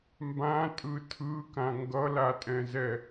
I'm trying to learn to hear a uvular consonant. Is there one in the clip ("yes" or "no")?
no